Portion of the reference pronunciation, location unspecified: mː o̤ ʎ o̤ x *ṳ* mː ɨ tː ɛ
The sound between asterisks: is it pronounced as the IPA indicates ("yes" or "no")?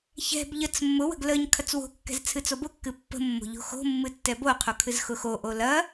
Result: no